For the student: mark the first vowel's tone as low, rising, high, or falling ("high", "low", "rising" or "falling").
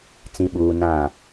low